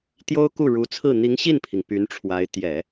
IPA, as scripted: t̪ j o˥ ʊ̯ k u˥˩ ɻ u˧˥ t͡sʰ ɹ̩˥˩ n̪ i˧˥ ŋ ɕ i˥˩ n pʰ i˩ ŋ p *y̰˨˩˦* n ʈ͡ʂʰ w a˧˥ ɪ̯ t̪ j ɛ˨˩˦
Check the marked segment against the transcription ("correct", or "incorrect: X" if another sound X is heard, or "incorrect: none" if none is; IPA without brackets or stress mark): incorrect: y˧˥